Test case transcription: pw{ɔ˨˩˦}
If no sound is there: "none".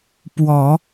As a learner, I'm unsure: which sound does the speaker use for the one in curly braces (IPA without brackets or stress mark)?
ɔ˨˩˦